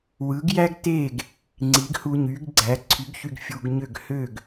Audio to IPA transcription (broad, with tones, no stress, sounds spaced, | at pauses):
w ɯ˩˥ ɡ j æ˥ ɡ t e˥˩ ɡ | ŋ͡ǀ i˩˥ ɡ h u˧ ɲ y˩˥ ɡ ɡ͡ǀ æ˩˥ ǀʰ y˩˥ ɡ ç y˧ ɡ fʲ u˧ ɡ ɲ ø˥˩ ɡ h ø˥˩ ɡ